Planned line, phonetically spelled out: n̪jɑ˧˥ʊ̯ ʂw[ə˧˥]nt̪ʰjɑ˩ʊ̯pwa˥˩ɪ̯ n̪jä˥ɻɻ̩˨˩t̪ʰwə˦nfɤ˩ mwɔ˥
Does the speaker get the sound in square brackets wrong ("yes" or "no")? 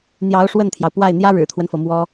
yes